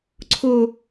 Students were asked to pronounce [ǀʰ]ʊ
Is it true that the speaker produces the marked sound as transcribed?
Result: yes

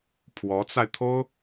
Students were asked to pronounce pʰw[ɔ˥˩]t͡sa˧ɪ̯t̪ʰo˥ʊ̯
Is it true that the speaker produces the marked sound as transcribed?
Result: no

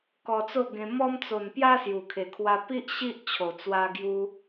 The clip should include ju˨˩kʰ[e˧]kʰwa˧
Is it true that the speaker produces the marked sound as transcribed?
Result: no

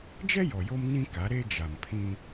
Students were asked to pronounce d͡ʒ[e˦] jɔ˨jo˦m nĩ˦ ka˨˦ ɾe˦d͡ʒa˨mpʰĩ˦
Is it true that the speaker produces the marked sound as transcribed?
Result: no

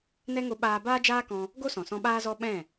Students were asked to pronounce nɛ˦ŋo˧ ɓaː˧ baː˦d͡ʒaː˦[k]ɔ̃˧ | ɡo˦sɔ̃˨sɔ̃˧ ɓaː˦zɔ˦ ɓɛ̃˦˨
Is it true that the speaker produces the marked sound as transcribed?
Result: yes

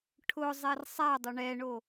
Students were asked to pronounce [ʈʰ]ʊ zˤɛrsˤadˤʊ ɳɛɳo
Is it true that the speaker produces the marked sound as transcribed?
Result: yes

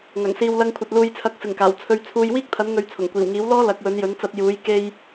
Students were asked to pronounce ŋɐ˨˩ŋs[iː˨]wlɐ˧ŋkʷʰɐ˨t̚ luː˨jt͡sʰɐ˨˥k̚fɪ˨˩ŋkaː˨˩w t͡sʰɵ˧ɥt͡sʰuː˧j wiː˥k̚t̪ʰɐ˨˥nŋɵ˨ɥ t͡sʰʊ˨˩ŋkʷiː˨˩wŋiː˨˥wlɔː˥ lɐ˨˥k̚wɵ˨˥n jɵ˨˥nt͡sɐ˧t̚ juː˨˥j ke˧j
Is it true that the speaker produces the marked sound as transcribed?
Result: yes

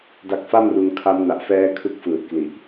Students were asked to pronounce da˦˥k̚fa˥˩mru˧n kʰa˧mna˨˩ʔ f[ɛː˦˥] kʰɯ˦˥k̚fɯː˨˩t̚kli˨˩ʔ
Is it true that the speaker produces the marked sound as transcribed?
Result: yes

